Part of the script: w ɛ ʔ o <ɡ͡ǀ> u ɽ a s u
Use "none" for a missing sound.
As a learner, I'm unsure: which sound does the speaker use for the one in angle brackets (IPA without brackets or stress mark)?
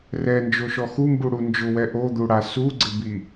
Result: d̪